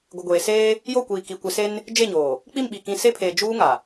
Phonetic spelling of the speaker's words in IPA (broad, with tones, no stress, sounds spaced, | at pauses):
ɡʷ ɪ˨ ɡʷ eː˨ s eː˦ | j o˦˨ kʷ iː˨ k i˨ kʷ ɪ˨ s e˦ n | d͡ʒ e˦˨ ɲ oː˨ | k͡p i˦˨ m ɓ i˨ k ĩ˨ s e˦ pʰ eː˨ d͡ʒ uː˦ ŋ a˨